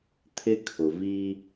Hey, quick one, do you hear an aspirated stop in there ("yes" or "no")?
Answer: yes